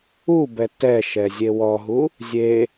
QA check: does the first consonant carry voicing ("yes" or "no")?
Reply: yes